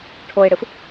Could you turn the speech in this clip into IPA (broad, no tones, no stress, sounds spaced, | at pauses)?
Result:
ʈʰ o ɪ̯ ɽ ɨ f